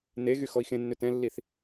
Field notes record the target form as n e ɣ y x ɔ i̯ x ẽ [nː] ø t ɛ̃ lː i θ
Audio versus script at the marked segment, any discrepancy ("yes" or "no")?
no